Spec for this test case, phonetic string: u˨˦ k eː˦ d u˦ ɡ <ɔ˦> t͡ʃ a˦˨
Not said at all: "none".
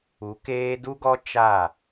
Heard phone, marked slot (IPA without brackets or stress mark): ɔ˦